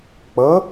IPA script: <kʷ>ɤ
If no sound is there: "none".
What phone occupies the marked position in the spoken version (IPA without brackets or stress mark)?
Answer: k͡p